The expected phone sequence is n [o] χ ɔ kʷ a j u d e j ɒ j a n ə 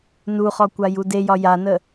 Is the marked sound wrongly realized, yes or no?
yes